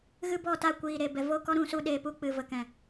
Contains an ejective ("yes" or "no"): no